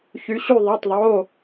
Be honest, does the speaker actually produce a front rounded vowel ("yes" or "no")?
yes